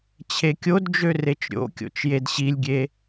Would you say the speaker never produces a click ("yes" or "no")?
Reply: yes